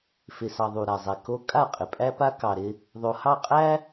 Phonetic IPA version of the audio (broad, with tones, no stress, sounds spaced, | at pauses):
f ɪ˨ s ɑ˨ ðˤ u˨ ɾ a˨ zˤ ɛ˨ k o˦ kʼ a˦˨ qʼ ɪ˨ pʼ æ˦ p a˦ k ɑ˨ ɾ ɪ˦ | ðˤ o˨ h ɑ˦˨ qʼ æ˦